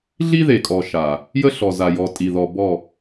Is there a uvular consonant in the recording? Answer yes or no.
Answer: no